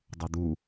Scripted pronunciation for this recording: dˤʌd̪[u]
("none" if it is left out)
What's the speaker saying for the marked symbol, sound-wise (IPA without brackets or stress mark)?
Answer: u